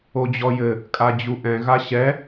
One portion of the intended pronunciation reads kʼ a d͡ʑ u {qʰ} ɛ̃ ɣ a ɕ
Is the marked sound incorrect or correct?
incorrect